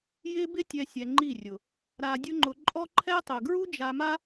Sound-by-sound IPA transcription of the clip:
j ɪː˦ b ɪ˦ tʲ ɛ˧ sʲ ɛ˧ ŋ͡ǃ i˦˨ rʲ ʊ˨ | ɾ a˧ dʲ ʊ˦ ŋ͡ǃ ʊ˧ ǃʼ ɔ˦ ǃʰ ɛ˦ tˤ ʊ˨ ɡ ɹ u˦ d͡ʒ a˧ m a˦

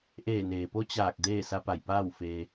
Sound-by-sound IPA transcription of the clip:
ʔ eː˧˩ n eː˩ p o˧˥ t͡ɕ aː˧˩ k̚ d eː˥˨ s a˧ p a˧˩ j p aː˥˨ w f eː˧

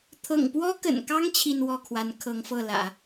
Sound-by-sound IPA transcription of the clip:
t̪ʰ ɤ̰˨˩ ŋ p w ɔ˥ k ə̰˨˩ n k ɑ˥ ŋ t͡ɕʰ i˥˧ n w ɔ˥˩ kʰ w a˧˥ n kʰ ɤ˧˥ ŋ f ɤ˥˩ l ä̰˨˩˦

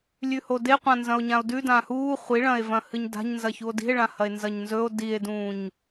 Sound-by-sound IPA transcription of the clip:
lʲ ʉ h o d e qʷ ã n z ɐ̃ o̯ ɲ ã o̯ d ʉ d ã h uː χʷ i ɭ ɐ̃ e̯ v ɐ̃ h ɨ ɲ d a̤ ɲ n z ɐ ç u o̯ d i̤ e̯ ɭ ã h ɐ e̯ n z ɐ ɲ n z ɵ o̯ d i e̯ d ũː ɲ

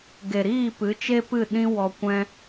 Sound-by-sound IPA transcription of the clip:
ɡ e˨ ɾ iː˦˨ p ɨ˨˦ t͡ʃ e˦ p ɨ˦˨ ɗ ĩ˦ w ɔ˧ kʷ ɛ̃˦

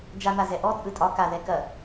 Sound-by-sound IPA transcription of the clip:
d͡ʒ a n̪ a z ɛ ʔ ɔ t͡sʼ ɯ tʼ ɒ k a ð ɛ k ɐ

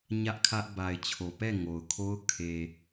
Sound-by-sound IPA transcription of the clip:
ɲ ä˦ ʔ kʰ ä˦ ʔ b a˨ ɪ̯ t͡ɕʰ o˨ p ɛ˦˨ ŋ o˨ ʊ̯ kʰ o˦ ʊ̯ kʰ e˨

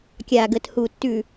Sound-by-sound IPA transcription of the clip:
kʲ a˨ ɡ ə˨ t h u˨ tː ʉ˨

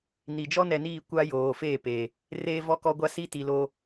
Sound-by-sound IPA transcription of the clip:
n i˨ d͡ʒ ɔ˦ n ɛ˨ n iː˦˨ kʷ a˦ j oː˨ f eː˦˨ p eː˨ | r eː˦ v ɔ˦ k ɔ˦ ɡʷ a˦ s i˦ t i˨ l oː˦

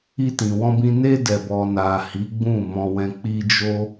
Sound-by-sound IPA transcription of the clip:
i˧ t ĩ˨ w ɔ̃˧ b ĩ˧ n e˧ d ɛ˨ b ɔ˨ n a˨ h i˨˦ ɡ͡b ũ˦˨ m ɔ̃˧ w ɛ̃˧ k͡p i˧ d͡ʒ o˦

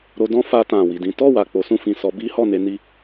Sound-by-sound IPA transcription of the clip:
ɾ o˧ d ɔ̃˦ f a˧ t ã˨ w i˨ d ĩ˨˦ t ɔ˦˨ w a˨ k͡p o˨˦ s ũ˦˨ f ĩ˨ s ɔ˨˦ b i˦ h ɔ˦˨ n e˧ n i˧

